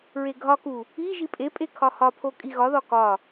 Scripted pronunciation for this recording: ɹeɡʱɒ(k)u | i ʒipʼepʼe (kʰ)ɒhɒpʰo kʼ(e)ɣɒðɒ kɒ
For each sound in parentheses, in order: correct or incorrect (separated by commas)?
correct, correct, incorrect